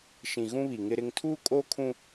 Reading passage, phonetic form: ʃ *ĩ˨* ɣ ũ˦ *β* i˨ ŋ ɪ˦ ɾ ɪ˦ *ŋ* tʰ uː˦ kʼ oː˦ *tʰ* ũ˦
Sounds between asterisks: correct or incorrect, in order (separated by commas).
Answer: correct, correct, correct, incorrect